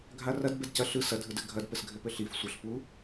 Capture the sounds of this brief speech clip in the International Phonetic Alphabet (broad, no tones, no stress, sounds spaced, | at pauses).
ɡʱ a r ɐ d b ɛ d c ɐ ɬ ɯ s ɐ dʱ ɯ d ɘ ɡʱ ɐ d p ɘ s ɡʱ ɘ p ɘ ɬ i f sʷ ə ɬ p u